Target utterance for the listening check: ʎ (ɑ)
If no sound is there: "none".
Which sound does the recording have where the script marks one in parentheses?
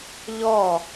ɔ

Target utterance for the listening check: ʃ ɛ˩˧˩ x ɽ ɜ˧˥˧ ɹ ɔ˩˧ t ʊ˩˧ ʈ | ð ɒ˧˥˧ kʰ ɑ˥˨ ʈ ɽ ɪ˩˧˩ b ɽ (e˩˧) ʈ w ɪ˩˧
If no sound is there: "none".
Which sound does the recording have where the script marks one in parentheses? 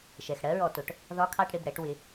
ɛ˩˧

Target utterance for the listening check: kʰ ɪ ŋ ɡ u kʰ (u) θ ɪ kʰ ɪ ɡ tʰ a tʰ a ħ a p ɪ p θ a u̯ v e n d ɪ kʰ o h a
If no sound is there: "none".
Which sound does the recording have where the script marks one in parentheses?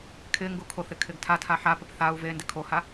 o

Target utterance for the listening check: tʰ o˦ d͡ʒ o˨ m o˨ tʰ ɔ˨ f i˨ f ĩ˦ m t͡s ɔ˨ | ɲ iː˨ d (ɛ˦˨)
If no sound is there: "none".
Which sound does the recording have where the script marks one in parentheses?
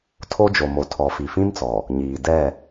ɛ˦˨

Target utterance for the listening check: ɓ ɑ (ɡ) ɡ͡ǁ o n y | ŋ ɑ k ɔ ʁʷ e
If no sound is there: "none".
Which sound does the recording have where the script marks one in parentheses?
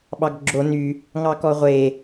ɡ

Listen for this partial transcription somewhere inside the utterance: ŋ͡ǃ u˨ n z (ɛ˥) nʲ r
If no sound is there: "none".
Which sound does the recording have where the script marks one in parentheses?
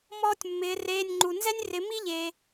ɛ˥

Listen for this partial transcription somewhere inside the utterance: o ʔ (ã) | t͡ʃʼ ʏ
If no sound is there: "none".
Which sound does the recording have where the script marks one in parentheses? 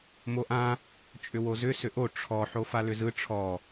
ã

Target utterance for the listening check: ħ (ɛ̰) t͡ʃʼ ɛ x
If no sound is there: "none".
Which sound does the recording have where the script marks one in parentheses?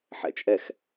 ɛ̰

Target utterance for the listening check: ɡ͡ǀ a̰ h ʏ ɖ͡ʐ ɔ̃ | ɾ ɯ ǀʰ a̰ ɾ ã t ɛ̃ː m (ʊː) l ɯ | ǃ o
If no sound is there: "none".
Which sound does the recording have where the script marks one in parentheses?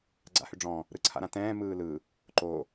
ɯː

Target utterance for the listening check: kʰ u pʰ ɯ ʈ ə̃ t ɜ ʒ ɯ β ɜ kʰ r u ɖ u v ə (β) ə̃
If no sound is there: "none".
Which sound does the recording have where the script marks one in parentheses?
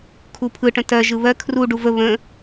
β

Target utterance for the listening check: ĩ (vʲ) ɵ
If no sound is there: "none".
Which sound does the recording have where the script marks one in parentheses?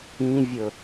vʲ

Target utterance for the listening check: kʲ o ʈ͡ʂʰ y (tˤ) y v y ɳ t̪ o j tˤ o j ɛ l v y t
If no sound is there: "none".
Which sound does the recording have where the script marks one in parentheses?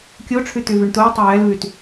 t̪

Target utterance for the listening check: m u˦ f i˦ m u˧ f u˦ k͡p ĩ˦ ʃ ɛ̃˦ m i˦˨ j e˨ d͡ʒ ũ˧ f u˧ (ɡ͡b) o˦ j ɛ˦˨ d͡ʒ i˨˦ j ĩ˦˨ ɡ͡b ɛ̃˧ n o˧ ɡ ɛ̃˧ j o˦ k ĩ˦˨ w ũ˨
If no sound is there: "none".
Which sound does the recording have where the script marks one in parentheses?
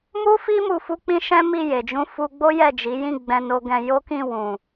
ɡ͡b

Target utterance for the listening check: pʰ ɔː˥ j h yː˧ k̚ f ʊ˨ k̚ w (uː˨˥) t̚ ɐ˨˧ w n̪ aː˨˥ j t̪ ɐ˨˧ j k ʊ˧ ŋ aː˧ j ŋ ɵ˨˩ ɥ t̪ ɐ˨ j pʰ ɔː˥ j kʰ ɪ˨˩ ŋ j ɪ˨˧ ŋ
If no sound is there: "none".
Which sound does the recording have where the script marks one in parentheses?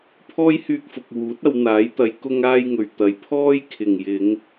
uː˨˥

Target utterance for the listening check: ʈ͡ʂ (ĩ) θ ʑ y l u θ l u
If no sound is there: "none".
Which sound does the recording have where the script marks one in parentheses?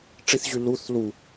i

